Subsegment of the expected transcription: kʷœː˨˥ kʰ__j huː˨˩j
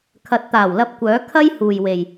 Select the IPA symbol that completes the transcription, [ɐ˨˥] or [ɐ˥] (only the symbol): ɐ˥